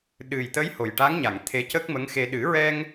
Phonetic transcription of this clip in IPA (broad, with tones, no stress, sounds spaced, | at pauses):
ɗ ɨ˨˩ j t̪ ə˧˥ j h o˨˩ j ʈ a˧˥ ŋ ɲ a˨˩˨ ŋ t̪ʰ e˧˥ c ə˦˥ k̚ m ə˧˥ ŋ x e˧ ɗ ɨ˨˩˦ ɹ ɛ˧ ŋ